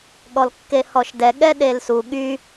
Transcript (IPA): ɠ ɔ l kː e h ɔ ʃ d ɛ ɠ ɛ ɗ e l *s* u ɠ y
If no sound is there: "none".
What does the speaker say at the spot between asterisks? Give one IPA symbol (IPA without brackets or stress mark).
s